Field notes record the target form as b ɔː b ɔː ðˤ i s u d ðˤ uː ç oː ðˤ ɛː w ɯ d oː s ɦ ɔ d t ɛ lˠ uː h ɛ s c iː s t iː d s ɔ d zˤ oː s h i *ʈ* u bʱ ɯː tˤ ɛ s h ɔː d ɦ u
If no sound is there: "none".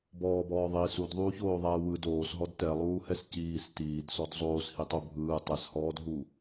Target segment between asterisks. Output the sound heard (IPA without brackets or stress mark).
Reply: tˤ